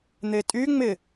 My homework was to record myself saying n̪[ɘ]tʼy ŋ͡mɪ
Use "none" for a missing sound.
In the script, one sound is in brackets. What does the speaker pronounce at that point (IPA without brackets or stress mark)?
e